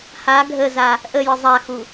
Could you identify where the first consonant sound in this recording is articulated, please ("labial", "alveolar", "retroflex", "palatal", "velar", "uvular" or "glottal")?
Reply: glottal